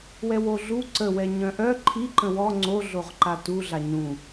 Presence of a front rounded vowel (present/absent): present